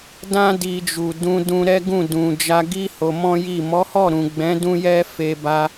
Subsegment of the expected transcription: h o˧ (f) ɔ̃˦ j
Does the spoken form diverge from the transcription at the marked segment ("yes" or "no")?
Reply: yes